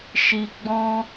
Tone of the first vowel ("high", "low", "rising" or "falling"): low